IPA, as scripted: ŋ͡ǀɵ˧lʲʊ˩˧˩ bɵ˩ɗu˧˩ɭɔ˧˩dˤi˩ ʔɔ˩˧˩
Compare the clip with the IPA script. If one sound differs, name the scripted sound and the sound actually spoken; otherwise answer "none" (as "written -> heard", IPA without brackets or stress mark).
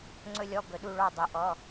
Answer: ʊ˩˧˩ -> ɔ˩˧˩